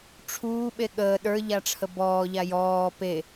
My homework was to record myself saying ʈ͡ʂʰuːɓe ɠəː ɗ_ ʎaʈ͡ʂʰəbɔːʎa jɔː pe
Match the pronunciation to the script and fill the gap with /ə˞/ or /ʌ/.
ə˞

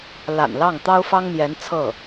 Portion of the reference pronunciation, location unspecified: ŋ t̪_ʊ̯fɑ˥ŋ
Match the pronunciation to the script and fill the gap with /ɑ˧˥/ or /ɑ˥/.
ɑ˥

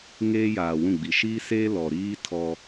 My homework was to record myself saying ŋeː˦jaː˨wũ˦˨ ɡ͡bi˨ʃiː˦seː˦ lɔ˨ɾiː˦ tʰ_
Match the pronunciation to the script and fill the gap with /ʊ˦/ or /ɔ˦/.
ɔ˦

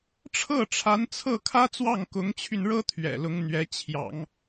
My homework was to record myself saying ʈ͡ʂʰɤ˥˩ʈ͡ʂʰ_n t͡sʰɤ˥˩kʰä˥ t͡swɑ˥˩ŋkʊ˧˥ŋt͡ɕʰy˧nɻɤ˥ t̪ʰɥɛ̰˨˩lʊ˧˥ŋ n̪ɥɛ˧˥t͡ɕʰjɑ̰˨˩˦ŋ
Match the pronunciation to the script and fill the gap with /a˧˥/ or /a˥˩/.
a˧˥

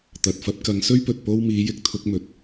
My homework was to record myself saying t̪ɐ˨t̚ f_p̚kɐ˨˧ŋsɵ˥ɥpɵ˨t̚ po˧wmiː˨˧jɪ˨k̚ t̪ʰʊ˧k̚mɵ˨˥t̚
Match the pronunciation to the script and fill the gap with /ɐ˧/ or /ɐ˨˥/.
ɐ˧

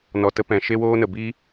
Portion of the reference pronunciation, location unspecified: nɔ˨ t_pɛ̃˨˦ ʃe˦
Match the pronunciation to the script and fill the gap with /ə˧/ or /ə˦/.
ə˦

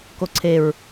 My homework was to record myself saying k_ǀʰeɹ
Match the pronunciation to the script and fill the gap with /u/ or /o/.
o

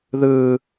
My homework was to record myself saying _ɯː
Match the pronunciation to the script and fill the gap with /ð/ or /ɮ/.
ð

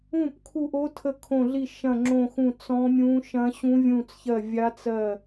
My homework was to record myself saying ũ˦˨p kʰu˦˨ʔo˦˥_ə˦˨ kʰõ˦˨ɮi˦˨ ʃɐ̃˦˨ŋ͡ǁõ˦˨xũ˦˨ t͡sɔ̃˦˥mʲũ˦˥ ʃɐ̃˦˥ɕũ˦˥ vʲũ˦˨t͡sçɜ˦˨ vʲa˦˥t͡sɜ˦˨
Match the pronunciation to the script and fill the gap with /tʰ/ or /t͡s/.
tʰ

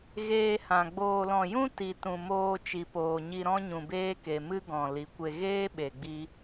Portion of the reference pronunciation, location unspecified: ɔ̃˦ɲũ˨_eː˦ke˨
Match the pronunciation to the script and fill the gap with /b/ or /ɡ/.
b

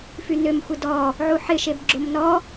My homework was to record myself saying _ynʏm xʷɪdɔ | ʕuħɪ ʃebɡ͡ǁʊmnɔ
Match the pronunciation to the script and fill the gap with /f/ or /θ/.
f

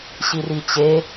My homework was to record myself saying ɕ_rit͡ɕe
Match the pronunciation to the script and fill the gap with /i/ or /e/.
i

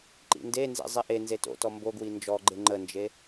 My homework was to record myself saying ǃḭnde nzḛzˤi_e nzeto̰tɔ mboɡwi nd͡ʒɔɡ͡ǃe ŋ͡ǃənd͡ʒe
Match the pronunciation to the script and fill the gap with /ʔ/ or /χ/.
ʔ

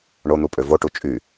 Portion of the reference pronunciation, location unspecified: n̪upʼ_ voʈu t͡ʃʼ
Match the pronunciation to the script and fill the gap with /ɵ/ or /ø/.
ø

